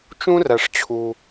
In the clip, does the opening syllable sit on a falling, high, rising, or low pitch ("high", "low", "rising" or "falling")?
high